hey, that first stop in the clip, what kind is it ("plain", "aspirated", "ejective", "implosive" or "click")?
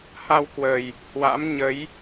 plain